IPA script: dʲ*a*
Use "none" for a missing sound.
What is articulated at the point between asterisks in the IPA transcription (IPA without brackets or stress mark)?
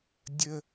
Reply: ə